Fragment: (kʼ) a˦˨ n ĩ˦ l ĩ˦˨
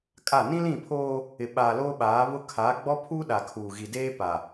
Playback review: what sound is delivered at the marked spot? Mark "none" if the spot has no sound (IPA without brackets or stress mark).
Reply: kʼ